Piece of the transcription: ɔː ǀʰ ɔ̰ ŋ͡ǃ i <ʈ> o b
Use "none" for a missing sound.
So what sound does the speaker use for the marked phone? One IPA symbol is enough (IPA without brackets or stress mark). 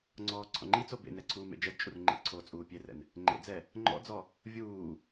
t͡s